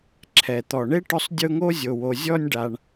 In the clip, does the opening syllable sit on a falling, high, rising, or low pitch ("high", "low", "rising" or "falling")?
low